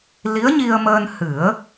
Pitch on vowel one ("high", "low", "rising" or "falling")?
rising